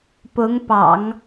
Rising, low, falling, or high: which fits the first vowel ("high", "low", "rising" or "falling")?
rising